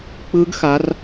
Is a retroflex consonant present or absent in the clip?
absent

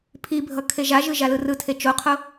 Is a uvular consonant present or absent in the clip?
present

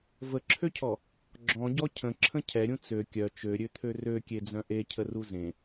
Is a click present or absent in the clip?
present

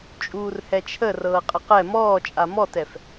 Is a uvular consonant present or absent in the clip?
present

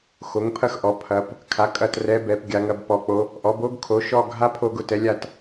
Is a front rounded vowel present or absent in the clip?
absent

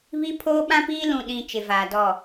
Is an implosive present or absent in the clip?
present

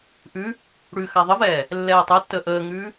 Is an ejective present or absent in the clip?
absent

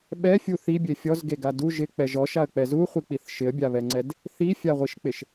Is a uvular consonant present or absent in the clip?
present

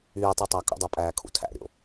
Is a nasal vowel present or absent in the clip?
absent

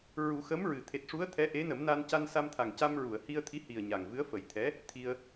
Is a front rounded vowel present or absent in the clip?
absent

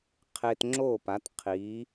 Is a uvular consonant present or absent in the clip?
present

